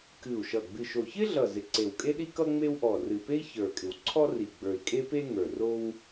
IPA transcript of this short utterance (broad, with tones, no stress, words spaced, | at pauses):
kɨ˨˩u̯ʃʌ˨˩ ɡ͡bɨ˨˩ʃo˨˩çɪ˥ɮʌ˨˩ zɪ˨˩ǀe˨˩w kʼe˥ɗi˥kʌ˥ ŋ͡me˥w ʔɔ˨˩rɨ˨˩pe˥i̯ çə˞˨˩kʼɪ˨˩wǀʰɔ˥ri˨˩ ɡ͡bə˞˨˩i̯ kʼe˥pe˥ ŋə˞˨˩ro˥w